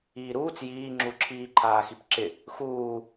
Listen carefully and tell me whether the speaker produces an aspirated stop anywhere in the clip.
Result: yes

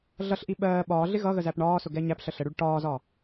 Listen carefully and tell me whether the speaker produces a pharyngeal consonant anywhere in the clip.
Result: no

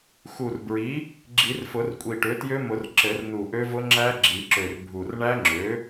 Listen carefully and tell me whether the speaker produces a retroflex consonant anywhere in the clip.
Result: yes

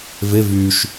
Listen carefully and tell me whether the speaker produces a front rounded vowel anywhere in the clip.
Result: yes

